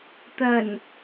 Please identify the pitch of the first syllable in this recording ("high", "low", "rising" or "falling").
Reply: low